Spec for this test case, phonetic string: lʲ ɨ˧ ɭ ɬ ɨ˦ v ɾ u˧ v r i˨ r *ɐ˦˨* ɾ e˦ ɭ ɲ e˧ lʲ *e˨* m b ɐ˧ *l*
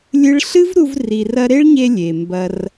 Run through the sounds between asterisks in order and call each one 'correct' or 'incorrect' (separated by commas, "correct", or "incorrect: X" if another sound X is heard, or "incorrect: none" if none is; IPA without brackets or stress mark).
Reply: incorrect: ɐ˧, correct, incorrect: r